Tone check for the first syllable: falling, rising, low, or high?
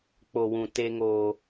low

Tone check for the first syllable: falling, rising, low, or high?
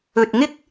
low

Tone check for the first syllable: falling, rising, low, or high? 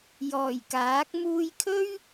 low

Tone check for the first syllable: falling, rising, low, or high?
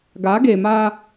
rising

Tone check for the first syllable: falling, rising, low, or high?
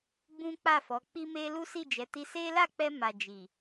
high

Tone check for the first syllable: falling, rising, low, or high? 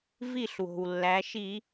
falling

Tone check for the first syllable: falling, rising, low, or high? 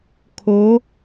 rising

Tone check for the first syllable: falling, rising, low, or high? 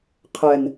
low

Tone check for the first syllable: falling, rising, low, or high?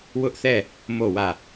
high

